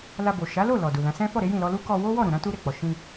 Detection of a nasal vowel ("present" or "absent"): present